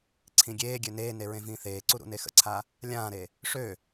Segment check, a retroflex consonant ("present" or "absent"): present